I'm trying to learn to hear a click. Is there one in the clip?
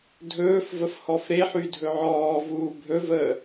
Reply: no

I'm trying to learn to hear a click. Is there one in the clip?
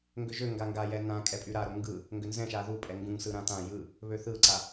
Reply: yes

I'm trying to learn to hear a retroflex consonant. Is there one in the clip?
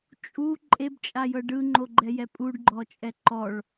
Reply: yes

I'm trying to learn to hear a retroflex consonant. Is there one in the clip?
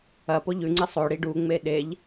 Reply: yes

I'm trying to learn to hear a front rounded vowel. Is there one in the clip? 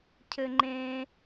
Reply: no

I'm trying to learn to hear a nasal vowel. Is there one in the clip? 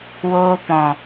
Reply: yes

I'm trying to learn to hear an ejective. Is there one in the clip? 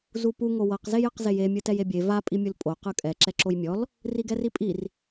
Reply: yes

